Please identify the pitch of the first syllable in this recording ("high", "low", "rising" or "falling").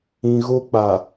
low